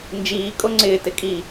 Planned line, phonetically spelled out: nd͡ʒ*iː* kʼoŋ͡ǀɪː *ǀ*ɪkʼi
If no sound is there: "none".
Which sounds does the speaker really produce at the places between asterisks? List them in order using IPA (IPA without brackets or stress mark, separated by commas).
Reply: iː, t